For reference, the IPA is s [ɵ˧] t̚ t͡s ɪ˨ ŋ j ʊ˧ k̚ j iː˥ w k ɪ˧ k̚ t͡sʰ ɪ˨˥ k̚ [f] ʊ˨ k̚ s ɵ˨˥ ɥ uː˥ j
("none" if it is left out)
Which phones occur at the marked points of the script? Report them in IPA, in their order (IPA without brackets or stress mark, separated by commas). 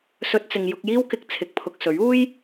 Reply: ɵ˧, pʰ